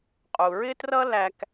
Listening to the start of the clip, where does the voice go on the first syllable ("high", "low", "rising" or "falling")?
low